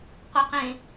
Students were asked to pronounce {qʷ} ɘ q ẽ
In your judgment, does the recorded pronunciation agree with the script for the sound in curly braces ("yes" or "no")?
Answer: yes